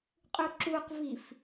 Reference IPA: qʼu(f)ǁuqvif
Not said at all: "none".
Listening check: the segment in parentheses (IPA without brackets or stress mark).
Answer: none